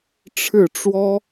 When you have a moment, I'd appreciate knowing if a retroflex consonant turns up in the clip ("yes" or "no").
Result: yes